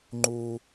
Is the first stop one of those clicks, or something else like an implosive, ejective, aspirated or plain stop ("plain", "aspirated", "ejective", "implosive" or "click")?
click